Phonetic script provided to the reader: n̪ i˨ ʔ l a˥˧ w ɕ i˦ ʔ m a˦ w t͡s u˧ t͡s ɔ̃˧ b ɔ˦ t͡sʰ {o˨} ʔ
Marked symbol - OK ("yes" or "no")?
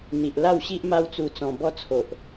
yes